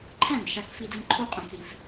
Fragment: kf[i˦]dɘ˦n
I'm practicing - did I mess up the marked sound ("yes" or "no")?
no